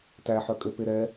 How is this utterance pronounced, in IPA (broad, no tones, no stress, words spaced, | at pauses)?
tæħœkʼøpe ɾɛ